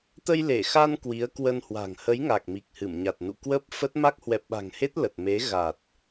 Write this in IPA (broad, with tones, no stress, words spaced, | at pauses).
t̪ə˧jle˧˩xa˧n kwi˨˦ə̯kwə˧nhwa̤˨˩ŋ hə˨˦jŋa˨˩k̚ mi˨˩k̚hɨ˧˩m ɲa˨˩t̚nṵ˧˨kwəː˦˥p̚fə˦˥t̚ ma˦˥k̚hwɛ˨˩p̚ɓa̤˨˩ŋhe˦˥t̚ lə˨˩t̚me˨˦ ɣa˨˩t̚